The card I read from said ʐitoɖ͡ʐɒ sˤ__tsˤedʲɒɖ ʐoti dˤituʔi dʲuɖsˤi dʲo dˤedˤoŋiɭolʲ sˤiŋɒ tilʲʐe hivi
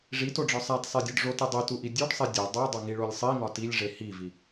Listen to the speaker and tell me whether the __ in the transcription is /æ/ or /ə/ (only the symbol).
æ